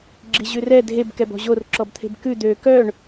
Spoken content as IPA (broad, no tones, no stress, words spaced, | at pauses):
ɡ͡ǁiʑʉrɛ dʱeb kɛbɔ̤ʑor ǁɔbt̪ʰe̤bkʉ d̪ø kœɳ